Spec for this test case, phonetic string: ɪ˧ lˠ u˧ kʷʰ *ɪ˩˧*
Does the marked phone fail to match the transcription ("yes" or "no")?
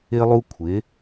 no